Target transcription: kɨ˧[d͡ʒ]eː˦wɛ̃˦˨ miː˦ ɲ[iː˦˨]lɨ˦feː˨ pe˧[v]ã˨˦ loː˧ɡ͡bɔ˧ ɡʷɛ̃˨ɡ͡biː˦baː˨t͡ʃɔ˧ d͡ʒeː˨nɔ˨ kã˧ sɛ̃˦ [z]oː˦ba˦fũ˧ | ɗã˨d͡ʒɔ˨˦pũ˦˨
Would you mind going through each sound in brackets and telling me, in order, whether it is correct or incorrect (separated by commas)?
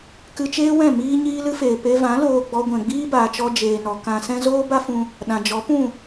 incorrect, incorrect, correct, correct